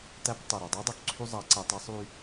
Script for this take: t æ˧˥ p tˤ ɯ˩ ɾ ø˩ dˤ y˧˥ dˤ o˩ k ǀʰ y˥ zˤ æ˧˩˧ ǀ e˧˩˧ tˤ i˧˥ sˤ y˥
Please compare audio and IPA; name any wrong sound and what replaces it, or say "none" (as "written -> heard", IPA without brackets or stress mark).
none